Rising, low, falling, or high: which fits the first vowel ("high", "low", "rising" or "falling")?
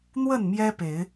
falling